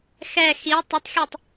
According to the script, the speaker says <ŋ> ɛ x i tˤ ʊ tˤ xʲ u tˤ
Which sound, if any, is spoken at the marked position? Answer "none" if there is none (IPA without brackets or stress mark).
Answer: x